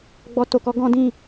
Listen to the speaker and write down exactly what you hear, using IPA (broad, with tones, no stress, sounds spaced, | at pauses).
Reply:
ɡ͡b ɔ˦ t o˧ k ɔ˦ ɡ ɔ̃˦ d ĩ˦˨